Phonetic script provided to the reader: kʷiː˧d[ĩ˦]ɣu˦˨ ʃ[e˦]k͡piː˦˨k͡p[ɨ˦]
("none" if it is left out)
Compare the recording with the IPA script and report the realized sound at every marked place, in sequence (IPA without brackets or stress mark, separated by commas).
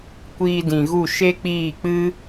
ĩ˨, e˦, ɨ˦